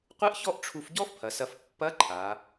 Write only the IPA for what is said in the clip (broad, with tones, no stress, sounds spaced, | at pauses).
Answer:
qʷ ɨ˥ ʔ ç ɔ˥ ʔ ʈ͡ʂʰ u˧ f ɟ ɔ˥ f pʰ ɐ˩˧ s ɐ˧ f pː ɐ˧˥ ǃʰ a˩˧